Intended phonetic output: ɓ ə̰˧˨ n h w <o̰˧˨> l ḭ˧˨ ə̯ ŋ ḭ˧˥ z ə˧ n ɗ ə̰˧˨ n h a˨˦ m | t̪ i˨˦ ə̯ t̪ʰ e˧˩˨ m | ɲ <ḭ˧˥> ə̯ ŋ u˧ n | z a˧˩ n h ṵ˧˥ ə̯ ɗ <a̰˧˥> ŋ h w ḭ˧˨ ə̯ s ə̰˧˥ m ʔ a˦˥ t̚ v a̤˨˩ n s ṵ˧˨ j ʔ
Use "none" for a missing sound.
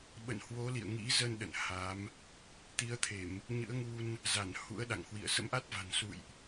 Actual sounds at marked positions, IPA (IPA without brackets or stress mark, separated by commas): o˨˦, ɨ̰˧˥, a̰˧˨